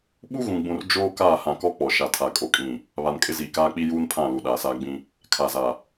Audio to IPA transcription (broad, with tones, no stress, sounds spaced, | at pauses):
ɓ u˦ ɣ ũ˨ ɡ͡b ũ˨ r d͡ʒ oː˦ k aː˦˨ h ã˨ k ɔ˦ k͡p ɔ˨ ʃ a˨ tʰ a˨ kʼ o˨ kʼ ĩ˨ | β a˨ n kʼ ɪ˦ z iː˨ k aː˦ k͡p i˦ j uː˦ n pʰ ã˦˨ l u˨ ɗ aː˨ s aː˦ ɡ͡b ĩ˦ | kʰ a˨ z a˨